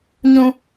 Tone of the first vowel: high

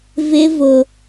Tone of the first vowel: high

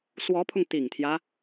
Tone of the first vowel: rising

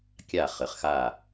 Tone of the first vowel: falling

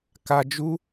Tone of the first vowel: high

